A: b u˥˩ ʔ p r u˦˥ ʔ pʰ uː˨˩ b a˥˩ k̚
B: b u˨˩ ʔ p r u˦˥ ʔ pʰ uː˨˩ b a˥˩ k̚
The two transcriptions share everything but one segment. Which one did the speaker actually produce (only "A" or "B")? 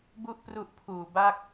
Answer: A